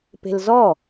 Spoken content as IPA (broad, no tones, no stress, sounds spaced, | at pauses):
p e̤ l z ɔ